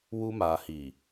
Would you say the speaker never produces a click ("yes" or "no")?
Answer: yes